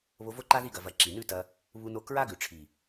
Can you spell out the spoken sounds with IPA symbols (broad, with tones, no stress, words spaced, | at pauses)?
βo˧vo˦ ǃa˦ði˦˨ɡɐ˨vɐ˨ ǁi˨nʉ˦tɐ˧ | βu˧no˧ kɹa˦ɡʉ˨ ʈ͡ʂʰi˨